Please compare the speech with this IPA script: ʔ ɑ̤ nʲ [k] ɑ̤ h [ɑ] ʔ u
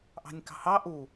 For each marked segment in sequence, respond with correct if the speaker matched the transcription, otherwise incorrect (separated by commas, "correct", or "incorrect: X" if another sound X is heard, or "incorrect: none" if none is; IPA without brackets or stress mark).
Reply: correct, correct